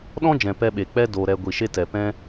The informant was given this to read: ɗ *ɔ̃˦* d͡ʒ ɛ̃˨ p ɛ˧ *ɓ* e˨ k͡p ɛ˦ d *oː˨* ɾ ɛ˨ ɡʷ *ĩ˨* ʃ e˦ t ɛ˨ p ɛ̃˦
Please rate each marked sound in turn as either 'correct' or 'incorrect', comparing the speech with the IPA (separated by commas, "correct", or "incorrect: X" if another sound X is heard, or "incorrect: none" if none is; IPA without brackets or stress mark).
correct, correct, correct, incorrect: i˨